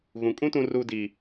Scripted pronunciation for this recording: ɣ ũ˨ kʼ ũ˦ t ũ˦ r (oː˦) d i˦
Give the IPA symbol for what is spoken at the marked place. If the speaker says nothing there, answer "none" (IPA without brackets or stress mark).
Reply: uː˦